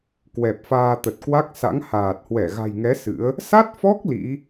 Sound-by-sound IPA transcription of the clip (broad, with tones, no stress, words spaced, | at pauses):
kwɛ˨˩p̚faː˧t̪ə˨˩t̚ kwa˦˥k̚sa̰˧˥ŋhaː˨˩t̚hwɛ˧˩ ɣa̤˨˩jŋɛ˨˦ sɨ̰˧˥ə̯ | sa˦˥t̚fɔ˦˥k̚ lḭ˧˥